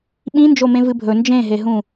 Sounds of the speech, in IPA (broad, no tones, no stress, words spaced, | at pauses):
ɓĩnd͡ʒomẽ vɨbʱɵ nd͡ʒẽɦeɦũ